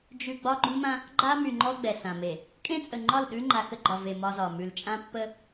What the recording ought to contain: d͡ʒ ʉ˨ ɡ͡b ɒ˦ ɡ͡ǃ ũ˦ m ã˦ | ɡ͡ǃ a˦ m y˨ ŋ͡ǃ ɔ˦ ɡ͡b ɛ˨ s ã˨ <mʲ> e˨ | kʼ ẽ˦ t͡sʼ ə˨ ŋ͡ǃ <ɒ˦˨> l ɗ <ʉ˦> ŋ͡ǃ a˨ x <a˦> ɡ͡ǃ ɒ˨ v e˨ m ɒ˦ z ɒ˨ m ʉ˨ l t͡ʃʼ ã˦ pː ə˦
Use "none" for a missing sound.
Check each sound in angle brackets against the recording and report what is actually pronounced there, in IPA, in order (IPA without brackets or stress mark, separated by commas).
m, ɒ˦˨, ʉ˦, ə˦